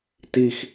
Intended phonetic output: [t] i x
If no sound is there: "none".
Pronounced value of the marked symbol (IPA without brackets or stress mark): t